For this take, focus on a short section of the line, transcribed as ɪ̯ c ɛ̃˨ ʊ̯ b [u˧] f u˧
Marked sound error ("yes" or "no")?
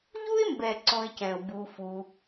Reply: no